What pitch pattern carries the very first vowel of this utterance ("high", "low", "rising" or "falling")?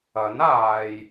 rising